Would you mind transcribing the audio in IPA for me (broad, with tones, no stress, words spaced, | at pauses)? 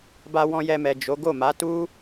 ba˧wɔ̃˧ jɛ˧mɛ˨ d͡ʒo˨˦ ɡo˦˨ma˨˦ tu˦